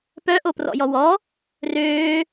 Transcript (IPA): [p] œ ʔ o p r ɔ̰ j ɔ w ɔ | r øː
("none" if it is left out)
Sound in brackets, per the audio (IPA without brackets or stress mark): p